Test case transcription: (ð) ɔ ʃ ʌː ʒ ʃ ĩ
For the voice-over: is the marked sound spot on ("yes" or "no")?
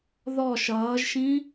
yes